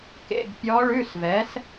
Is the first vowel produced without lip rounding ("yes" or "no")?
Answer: yes